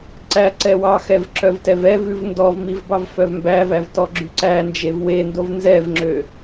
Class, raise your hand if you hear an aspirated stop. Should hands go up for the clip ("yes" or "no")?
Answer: no